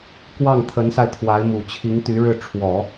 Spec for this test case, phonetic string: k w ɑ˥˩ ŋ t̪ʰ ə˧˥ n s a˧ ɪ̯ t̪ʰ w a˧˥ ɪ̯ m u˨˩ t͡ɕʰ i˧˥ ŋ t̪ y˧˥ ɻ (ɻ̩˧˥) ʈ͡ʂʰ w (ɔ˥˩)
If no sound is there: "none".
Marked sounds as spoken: ɻ̩˥˩, ɔ˨˩˦

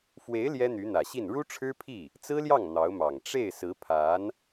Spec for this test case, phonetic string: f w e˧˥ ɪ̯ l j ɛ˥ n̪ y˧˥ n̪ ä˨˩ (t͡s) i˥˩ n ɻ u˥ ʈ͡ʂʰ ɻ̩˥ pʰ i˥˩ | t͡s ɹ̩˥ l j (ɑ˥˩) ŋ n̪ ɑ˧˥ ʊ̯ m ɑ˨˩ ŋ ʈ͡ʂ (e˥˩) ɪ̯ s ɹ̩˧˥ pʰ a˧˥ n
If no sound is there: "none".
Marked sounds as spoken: ɕ, ɑ˥˩, e˥˩

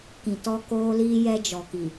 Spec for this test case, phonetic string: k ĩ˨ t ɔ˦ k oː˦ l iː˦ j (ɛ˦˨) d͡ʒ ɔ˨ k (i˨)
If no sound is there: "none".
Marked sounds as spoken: ɛ˦, i˨

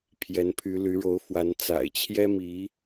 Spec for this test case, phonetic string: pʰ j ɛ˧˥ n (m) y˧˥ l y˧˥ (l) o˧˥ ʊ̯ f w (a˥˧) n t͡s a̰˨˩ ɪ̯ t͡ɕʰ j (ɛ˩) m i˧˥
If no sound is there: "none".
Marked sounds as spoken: pʰ, ɻ, a˧˥, ɛ˥

